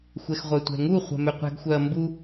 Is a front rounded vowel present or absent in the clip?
present